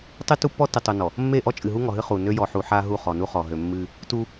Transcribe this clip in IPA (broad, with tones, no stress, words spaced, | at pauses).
tˤɨ˦tu˦pːɔ˦ tɨ˨tˤu˨nɔ˨ | mːe˦˨ ʔɔ˦t͡ʃʼɨ˨ɦu˦ŋɔ˨ ɦɨ˦ χu˨nø˦ jɔ˨ħu˨ħa˦ ɦu˦˨χɔ˨nu˦ χɔ˨ ɦø˨mːɨ˦ | tu˦